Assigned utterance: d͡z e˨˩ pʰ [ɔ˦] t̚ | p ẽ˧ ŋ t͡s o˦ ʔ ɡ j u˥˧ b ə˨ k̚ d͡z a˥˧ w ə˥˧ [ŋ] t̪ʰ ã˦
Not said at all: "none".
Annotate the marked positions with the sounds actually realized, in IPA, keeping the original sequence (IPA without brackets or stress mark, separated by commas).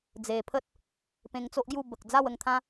ə˦, ŋ